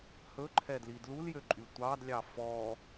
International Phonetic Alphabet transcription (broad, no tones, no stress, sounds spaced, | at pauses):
h ɵ ǃʰ ɛ d l i d l u l j ø ǃʼ y tʷ ɑ d lʲ ɑ f ɔ